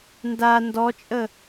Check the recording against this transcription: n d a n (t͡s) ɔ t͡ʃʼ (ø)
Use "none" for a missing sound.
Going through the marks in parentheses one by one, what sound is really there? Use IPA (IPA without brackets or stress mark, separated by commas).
d, ə